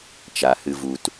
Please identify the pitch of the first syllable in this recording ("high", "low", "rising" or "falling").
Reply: low